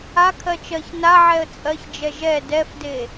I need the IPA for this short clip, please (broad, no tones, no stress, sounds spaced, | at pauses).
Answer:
a kʰ ɜ t͡ʃ ɜ ç n a ʕ ɛ ə̯ t͡sʼ ɜ ç d͡ʒ ɛ ʒ ɛ d ɛ f d e